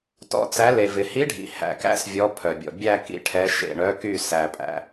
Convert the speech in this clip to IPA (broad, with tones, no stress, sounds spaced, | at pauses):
t ɔ̰˧˥ t͡s æ˧˥ l e˨ v ɪ˨ h i˧˥ ɖʱ ḭ˨ h æ̰˨ k æ̰˧˥ s vʲ ɔ˧˥ pʰ œ˨ bʲ ɔ̰˨ bʲ æ˦˨ k ḭ˨ ʈʰ ɛ˧˥ ʃ ḛ˦˨ ɳ œ˧˥ k y˦˨ s æ˨ pʼ æ̰˨